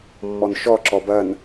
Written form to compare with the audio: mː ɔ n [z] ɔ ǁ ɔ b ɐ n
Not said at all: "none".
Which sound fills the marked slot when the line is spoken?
ʃ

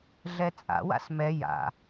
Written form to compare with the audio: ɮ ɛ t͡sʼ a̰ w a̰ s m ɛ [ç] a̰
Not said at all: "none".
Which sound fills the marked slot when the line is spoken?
j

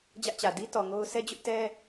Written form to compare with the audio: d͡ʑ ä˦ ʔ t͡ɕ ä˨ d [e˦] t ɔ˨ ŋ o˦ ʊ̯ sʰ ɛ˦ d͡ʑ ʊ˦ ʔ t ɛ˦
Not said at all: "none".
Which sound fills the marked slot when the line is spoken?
i˦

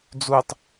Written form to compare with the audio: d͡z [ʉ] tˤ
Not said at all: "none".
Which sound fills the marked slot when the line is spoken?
u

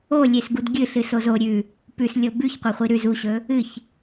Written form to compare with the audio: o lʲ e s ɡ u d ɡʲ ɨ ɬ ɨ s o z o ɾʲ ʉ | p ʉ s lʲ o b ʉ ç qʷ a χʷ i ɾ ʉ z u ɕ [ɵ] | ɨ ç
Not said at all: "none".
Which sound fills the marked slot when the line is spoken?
ɵ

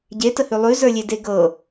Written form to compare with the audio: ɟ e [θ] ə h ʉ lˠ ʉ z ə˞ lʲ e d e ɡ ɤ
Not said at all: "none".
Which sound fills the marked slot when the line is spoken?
t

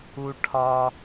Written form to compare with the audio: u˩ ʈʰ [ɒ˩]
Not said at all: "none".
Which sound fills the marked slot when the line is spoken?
ɒ˩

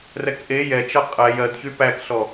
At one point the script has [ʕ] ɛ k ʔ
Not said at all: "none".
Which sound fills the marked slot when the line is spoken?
r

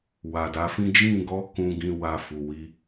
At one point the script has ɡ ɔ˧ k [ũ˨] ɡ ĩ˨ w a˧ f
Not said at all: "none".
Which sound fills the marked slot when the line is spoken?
ũ˨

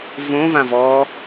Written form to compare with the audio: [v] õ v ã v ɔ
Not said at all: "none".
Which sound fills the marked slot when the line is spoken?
v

